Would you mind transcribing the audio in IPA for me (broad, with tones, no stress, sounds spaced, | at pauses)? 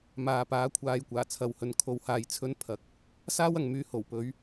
m aː˨ p aː˨˥ kʷʰ aː˨ j kʷ aː˨˩ t͡sʰ ɐ˨˧ w h ɵ˨ n kʰ o˨˥ w h aː˨ j t͡sʰ ɵ˨˥ n pʰ ɐ˨˥ k̚ | s aː˥ w ɐ˨ ŋ m yː˨˧ h o˨˩ w p ɵ˨˧ ɥ